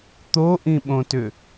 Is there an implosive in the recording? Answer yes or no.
yes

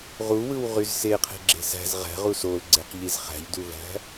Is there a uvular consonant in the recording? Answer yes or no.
yes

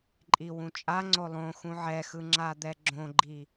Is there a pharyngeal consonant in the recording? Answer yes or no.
yes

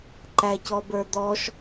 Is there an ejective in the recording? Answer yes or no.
no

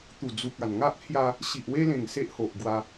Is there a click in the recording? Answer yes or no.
no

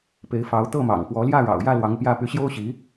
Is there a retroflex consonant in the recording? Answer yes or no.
yes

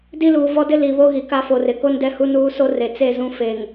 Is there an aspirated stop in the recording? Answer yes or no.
no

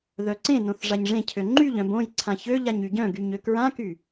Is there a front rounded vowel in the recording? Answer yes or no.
yes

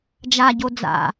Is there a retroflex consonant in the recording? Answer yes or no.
no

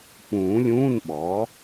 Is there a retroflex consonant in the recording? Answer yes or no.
no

